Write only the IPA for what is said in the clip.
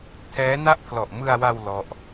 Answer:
tʰ ɛː˦˥ n a˥˩ ʔ pʰ l ɔ˨˩ ʔ m ɯ˧ a̯ w a˧ w l ɔ˦˥ ʔ

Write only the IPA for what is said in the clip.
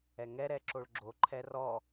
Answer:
ɛ ŋ ɛ ɾ ɛ ǁ o ɭ ɡ͡ǁ o ǃʰ ɛ r ɔ

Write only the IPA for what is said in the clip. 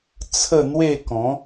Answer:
t͡sʰ ə˥˧ n̪ w e˥˧ k ɔ̃˨˦

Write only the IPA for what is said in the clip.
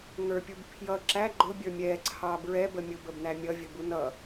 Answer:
ŋ ə˞ pʲ u b pʰ j ʌ ǁ æ ɡ͡ǃ ʊ bʲ ə˞ mʲ ɛ ǀʰ ɑ b ɹ ɛ b ə mʲ ʊ b ə b n æ mʲ ʌ vʲ ə b u n ʌ

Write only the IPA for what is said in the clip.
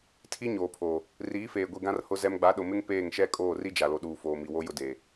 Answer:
tʰ i˦ ɲ oː˨ pʰ oː˨ | r iː˨˦ f eː˨ ɡʷ i˨ ɡ ã˦ r h ʊ˦ z ɛ˦ m ɡ͡b a˨˦ ɗ ʊ˨ m ɪ˦ ŋ p eː˦˨ ŋ ʃ ɛ˦ kʼ oː˦˨ r i˦ d͡ʒ a˨ l o˨ ɗ uː˨ f oː˨ m i˨ w o˦ j ʊ˦ d eː˨

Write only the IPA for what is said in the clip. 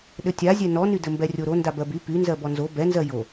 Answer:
ɗ ɘ tʲ a zʲ ɛ n ɔ n y d ɘ m b ɛ rʲ o ɾ o n d a b ɜ b y p y n z ɜ b ɔ n z o b ɛ n z ɜ j o

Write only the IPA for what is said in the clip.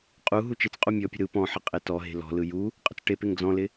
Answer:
qʼ u ɦ u t͡ʃ ɪ t͡s qʼ u mʲ ɔ pʲ ə̤ ɾ ɯ p ɔ̃ ħ ɪ qʼ e t ɔ ɦ e̤ l ɔ̤ l ɯ j u | qʼ ə̤ t͡s ʈ e p e ŋ d͡z ɔ̃ l ɪ

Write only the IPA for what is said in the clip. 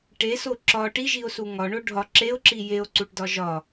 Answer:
ʈ e s o ǁ ɒ ʈ i ʒ i o̯ s u ŋ ɒ ɳ o ɖʱ ɒ ǁ e o̯ ǁ i j e o̯ ǀ u ʈ d ɒ ʒ ɒ

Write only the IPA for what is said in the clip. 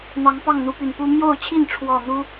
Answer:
n̪ ɑ˨˦ ŋ p ɑ˥˨ ŋ n̪ u˦ p y˨˩ n p u˦ m j o˥˨ ʊ̯ t͡ɕʰ i˥˨ n ʈ͡ʂʰ w ɔ˥˨ n̪ u˦

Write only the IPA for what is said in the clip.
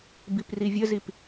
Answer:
b i p r i vʲ ə z i p

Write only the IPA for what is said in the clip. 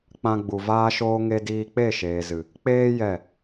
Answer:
k͡p ã˧ ɡ͡b u˨ v aː˧ ʃ oː˧ ŋ e˧ d iː˧ k͡p e˦˨ ʃ eː˨ z ɨ˨ | k͡p eː˧ j ɛ˦˨

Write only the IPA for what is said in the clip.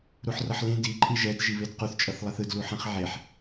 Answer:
ɾ u ħ r ʌ ħ l ẽ d i ǃʼ i ʒ ɛ d ʒ i β e d q u θ t͡ʃʼ ʌ θ lˠ ɛ θ ɯ d l u ħ ɛ̃ χ ʕ e ħ

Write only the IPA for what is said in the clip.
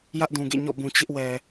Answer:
j ä˦ ʔ d ũ˨ ɡ ḛ˦˨ ɲ ɔ̰˦˨ b ũ˨ t͡ɕ ɪ˦ ʔ w ɛ˨

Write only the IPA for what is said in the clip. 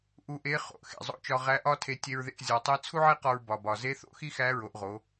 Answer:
ʔ u˧˥ ʔ e˧˥ χ o̰˩ ʔ x ḛ˩ zˤ o̰˧˥ t͡ʃ ɒ˧ ʁ æ˧˥ ʔ ɒ˥ tʰ e˧ tʲ e˧ ɹ ð ḛ˧ ʔ zʲ ɒ˩˧ tˤ i˧˥ t͡sʰ u˥ ʕ e˥ q ɒ˧ ɹ b ɒ˩ b ɒ˩ z e˧˥ θ o̰˥ x i˥ x æ˧˥ ɹ o˩˧ ʔ ʁ o˩˧

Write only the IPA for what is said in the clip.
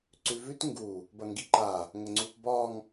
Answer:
ǀ ʉ v ʉ t ŋ ɡ u | b ɐ ŋ ɡ i ǃ a | ŋ ə ŋ͡ǀ u p b ɒ ŋ

